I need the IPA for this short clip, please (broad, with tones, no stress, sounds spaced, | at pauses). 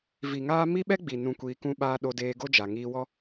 v i˨ ŋ aː˦ m i˦ ɓ ɛ˦ ɡ͡b i˨ n ũ˧ kʷ iː˧ k ũ˦ ɓ aː˦ ɗ o˧ d eː˧ ɡ o˦ d͡ʒ a˨ ŋ iː˧ w ɔ˦